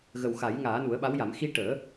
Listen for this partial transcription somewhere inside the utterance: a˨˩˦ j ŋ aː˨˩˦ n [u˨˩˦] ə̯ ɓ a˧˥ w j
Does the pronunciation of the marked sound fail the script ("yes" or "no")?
no